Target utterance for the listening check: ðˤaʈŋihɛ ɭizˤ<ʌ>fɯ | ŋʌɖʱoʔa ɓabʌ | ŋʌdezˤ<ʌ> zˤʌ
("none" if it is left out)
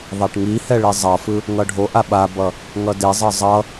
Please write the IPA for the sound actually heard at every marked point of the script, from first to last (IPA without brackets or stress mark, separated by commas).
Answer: ʌ, ʌ